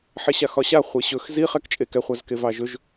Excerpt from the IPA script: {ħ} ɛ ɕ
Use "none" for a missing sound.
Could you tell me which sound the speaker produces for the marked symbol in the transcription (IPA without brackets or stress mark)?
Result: ħ